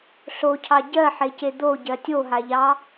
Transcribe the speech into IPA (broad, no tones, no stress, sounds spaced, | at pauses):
ɬ o cʰ ɑ ɟ ɜ ħ e c e d̪ o ɟ ɜ tʲ o ɦ a ʎ ɑ